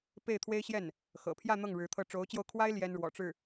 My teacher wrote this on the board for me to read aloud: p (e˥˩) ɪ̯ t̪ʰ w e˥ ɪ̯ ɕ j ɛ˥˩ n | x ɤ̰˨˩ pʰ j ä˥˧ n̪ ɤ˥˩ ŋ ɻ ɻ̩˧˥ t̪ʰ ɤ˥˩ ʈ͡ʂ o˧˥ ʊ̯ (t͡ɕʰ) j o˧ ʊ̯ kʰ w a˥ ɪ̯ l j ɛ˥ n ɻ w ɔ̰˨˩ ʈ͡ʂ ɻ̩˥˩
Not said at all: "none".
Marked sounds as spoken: e˥˩, t͡ɕ

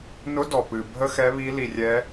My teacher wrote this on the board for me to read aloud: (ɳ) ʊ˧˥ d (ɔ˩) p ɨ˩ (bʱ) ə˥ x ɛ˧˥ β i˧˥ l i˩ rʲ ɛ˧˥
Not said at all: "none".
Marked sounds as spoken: n, ɔ˩, bʱ

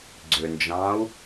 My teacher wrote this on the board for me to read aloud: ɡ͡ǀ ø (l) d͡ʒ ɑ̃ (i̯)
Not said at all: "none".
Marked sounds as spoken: n, u̯

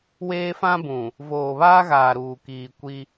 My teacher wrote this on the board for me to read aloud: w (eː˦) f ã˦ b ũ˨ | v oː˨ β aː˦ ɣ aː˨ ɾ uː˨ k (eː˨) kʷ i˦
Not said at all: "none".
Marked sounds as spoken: eː˦, iː˨

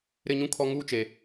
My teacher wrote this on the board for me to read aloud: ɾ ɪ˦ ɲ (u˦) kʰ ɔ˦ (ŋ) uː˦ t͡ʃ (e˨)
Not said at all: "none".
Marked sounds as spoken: ũ˦, ŋ, e˨

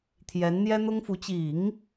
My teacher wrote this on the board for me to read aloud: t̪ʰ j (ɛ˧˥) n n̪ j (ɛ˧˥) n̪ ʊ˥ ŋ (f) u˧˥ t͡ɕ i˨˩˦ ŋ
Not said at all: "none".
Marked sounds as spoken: ɛ˧˥, ɛ˥, f

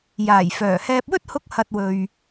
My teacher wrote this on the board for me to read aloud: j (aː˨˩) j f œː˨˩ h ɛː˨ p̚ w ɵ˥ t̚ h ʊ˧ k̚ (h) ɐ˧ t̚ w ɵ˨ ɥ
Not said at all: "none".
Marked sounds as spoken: aː˨˩, h

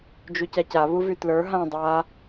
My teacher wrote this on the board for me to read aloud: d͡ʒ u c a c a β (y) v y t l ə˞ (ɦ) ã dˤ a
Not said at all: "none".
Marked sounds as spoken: u, ɦ

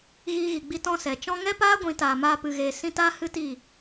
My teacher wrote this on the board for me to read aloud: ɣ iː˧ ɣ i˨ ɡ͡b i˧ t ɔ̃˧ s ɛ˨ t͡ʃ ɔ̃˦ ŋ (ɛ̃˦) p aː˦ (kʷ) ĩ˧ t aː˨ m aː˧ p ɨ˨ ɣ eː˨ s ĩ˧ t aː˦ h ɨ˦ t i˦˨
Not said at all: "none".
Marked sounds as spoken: ɛ˦, ɡʷ

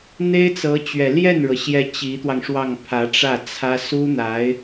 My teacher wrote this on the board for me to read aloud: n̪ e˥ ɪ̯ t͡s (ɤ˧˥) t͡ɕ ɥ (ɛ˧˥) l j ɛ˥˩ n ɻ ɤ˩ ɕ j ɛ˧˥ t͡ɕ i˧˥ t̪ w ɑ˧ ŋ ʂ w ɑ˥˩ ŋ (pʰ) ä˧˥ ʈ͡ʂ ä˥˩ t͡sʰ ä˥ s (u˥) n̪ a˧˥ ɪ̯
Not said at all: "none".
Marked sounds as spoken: ɤ˧˥, ɛ˨˩, pʰ, u˥

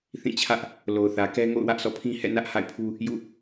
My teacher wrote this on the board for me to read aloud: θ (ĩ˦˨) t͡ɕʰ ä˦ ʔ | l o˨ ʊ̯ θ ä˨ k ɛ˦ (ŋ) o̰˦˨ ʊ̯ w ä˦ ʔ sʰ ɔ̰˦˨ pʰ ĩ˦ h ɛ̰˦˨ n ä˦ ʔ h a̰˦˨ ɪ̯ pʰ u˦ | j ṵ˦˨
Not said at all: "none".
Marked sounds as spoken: ĩ˦˨, ŋ

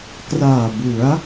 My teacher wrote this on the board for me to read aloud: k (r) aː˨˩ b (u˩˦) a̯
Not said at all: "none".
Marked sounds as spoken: r, u˩˦

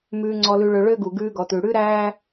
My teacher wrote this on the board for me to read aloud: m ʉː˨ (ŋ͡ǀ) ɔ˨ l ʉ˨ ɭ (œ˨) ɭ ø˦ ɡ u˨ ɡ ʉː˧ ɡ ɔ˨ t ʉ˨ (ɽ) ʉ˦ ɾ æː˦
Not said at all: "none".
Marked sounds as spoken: ŋ͡ǀ, ø˨, ɽ

